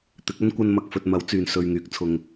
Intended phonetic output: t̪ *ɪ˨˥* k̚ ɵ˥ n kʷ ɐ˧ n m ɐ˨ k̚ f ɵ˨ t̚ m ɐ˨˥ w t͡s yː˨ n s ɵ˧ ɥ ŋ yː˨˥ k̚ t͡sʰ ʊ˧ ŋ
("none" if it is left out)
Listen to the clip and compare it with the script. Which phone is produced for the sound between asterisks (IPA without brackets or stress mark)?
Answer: ɪ˨˥